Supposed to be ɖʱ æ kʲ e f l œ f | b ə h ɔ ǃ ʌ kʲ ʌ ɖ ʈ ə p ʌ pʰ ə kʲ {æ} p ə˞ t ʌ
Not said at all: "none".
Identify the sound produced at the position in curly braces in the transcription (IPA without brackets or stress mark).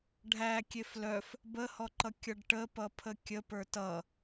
ə